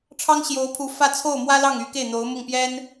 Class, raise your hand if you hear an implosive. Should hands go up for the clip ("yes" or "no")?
no